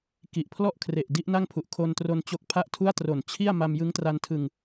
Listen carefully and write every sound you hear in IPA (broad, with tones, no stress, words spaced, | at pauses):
ki˨˩ʔpʰlɔ˥˩ʔkʰre˨˩ʔ di˦˥ʔna˥˩ŋpʰu˨˩ʔ kʰo˧ntro˧n t͡ɕo˨˩k̚ pʰa˥˩ʔtʰu˥˩a̯tro˨˩n t͡ɕʰi˥˩a̯ ma˧mjɯ˦˥ŋtra˧ntʰɯ˧ŋ